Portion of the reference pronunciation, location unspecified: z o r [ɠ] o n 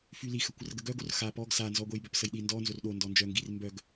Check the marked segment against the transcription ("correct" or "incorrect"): incorrect